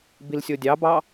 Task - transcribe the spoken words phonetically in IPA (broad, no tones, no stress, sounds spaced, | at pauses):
b i l sʲ o dʲ ɑ b ɑ